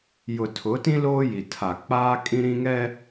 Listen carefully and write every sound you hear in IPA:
j ʊ˨ tʰ ʊ˨˦ t ĩ˦ l oː˦ j i˨ tʰ a˨ k͡p aː˦ kʼ ĩ˦ ɾ ĩ˦ ŋ ɛ˦

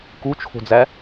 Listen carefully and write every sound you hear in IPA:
k u t͡ʃʰ o̤ d͡z æ

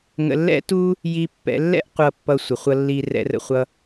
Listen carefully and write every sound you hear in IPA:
ŋ ə̰˧ lː ɛ̰˥ t u˥ | j i˧ pː ɛ̰˧ lː ɛ̰˥ ʔ qʷ ʌ˧ pː ʌ˧ sʷ ə˩ χʷ ʌ˧ lː i˧ r ɛ̰˧ r ə̰˧ χʷ ʌ˧

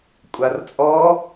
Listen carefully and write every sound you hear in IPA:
kʷʼ a r t͡sʼ ɔ

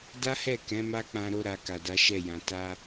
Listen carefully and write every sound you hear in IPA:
d a˦ h ɛ˦˨ k ɛ̃˨˦ m a˦ k͡p ã˧ ɾ o˧ ɾ a˨ k a˨ d a˨˦ ʃ ɛ˦˨ j ã˨ t a˧

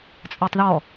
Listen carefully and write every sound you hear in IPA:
t͡sʼ ə˞ tˤ ð ɔ

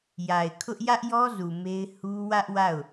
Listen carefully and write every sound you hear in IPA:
j a˨ ɪ̯ kʰ ʊ˦ ʔ j ä˦ ʔ j ɔ˦ z u˨ m e˦ ɪ̯ h u˦ w ä˦ ʔ w a˦˨ ʊ̯

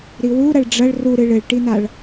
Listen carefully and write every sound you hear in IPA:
ɾ i w u ɾ ɐ ɭ ɖ͡ʐ ɐ ɭ r u ɾ ɨ ɭ ɘ ɭ ʈ i n̪ a ɭ

